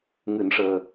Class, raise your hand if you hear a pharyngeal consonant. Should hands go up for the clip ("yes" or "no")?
no